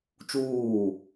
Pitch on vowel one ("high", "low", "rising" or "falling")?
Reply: falling